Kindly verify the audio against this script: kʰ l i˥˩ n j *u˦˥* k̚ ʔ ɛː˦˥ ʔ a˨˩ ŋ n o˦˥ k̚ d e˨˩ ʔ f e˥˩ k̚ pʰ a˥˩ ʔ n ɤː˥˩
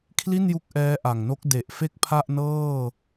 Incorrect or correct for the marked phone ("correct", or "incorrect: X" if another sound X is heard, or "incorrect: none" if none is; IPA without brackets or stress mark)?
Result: correct